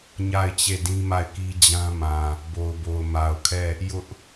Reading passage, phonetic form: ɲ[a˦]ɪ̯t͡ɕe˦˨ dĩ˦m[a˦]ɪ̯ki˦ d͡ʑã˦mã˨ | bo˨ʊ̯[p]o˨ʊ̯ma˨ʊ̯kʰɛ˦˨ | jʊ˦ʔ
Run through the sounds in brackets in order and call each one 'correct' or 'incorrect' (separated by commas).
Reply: incorrect, incorrect, incorrect